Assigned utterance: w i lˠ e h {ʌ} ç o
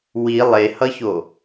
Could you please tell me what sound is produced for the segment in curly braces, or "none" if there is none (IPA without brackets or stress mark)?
ʌ